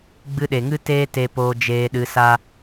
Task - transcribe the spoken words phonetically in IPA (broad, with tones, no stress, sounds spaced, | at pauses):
ɡ͡b ɨ˧ ɗ e˨ ŋ ɨ˦ t eː˦ t e˧ p oː˧ d͡ʒ eː˧ ɗ ɨ˧ s a˦